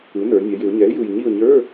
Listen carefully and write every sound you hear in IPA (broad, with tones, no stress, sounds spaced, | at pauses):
ɯ˩˥ n ə˞˩˧ nʲ ɛ˩˧ j ɪ˩˧ ʊ̯ ɲ ɛ˩˥ ɪ̯ j ɯ˨˩ j ɲ i˦˨ ʊ̯ ɲ ə˞˧˥˧